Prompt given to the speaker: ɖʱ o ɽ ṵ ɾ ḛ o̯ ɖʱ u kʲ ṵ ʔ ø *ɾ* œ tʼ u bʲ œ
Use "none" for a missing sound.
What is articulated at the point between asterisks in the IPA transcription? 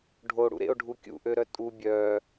ɾ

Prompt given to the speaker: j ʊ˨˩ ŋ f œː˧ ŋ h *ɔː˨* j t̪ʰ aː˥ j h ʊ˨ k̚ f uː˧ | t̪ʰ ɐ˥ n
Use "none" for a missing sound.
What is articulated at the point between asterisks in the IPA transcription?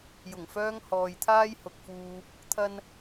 ɔː˨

